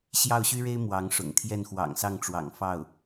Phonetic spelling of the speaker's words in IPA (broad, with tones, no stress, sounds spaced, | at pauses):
ɕ j ɑ˥˩ ʊ̯ ɕ y˥ ɻ e˥ ɪ̯ m w ɑ˧˥ ŋ ʂ ʊ̰˨˩ ŋ t̪ʰ j ɛ˥˩ n x w ɑ̰˨˩ ŋ s ɑ˥˩ ŋ ʈ͡ʂ w ɑ̰˨˩ ŋ f ɑ˥˩ ʊ̯